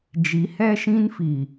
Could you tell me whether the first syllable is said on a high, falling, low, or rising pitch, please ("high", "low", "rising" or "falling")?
rising